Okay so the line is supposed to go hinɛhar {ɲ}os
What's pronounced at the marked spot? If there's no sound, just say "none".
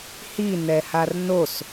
n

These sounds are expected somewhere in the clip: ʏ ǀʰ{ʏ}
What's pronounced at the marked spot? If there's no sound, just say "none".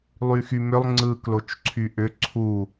u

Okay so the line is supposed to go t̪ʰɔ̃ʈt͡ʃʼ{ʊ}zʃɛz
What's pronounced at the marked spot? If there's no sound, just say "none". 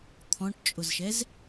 ʊ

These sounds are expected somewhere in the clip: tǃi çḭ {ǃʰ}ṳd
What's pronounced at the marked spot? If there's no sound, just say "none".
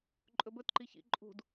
ǃʼ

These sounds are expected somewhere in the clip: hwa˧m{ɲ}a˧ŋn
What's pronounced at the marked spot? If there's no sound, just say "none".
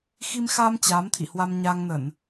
ɲ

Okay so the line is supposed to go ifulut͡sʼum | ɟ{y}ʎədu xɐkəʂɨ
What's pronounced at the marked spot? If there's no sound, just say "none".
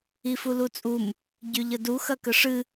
y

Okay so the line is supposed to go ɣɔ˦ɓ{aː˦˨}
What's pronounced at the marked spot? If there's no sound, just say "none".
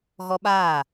aː˦˨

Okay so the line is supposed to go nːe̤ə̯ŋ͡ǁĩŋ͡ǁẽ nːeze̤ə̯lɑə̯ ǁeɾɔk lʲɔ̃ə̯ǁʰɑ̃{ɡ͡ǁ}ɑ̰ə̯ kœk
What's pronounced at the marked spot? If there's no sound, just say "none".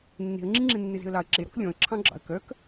ɡ͡ǁ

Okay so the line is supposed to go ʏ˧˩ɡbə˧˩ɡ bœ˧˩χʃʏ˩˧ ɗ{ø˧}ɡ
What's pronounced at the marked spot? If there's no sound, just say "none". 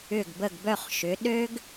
ø˧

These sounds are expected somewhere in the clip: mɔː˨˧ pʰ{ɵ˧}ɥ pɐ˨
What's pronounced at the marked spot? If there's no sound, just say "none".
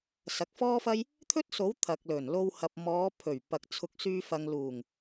ɵ˨˩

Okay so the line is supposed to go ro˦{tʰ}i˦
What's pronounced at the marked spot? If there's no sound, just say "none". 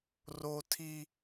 tʰ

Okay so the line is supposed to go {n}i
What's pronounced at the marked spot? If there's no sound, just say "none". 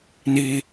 n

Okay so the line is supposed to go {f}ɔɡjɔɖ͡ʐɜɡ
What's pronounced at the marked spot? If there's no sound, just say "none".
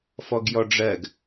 f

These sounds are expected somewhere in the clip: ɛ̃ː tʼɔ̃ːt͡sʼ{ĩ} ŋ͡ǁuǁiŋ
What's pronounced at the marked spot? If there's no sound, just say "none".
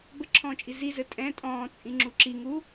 ĩ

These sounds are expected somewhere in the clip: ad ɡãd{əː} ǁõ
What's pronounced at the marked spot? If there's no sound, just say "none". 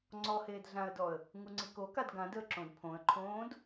əː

